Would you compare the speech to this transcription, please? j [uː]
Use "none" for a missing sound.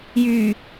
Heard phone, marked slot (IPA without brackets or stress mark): yː